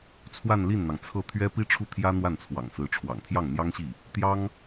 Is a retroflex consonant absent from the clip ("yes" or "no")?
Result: no